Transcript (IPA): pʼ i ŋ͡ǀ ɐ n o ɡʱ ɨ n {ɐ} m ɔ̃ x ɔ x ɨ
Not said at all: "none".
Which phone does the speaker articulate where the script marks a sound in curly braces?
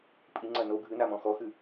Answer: a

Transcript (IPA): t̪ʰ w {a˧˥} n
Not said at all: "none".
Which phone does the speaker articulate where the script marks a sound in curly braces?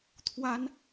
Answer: a˥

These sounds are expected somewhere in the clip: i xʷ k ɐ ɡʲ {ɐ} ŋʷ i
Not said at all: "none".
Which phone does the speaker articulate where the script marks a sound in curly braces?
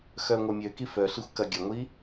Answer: ɐ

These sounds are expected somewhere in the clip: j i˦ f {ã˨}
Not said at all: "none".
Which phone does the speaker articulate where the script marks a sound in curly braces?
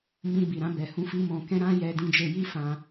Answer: ã˧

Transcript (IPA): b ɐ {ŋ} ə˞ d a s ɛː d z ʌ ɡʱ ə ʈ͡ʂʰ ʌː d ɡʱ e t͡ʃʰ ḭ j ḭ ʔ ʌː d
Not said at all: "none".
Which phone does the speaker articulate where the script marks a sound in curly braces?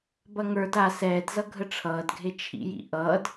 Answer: ŋ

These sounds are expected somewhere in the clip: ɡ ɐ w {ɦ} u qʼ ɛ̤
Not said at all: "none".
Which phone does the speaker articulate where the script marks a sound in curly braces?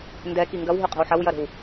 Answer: ɦ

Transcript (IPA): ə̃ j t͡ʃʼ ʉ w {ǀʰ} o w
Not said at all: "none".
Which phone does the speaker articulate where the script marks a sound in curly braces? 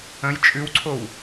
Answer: ǀʰ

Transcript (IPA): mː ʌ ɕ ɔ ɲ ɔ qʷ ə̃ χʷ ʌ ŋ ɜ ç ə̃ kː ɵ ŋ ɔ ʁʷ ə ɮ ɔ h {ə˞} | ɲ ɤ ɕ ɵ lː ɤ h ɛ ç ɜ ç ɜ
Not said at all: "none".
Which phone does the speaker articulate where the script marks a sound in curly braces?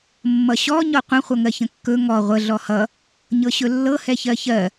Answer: ʌ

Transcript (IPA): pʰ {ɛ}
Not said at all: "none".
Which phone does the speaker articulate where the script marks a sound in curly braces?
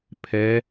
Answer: ɛ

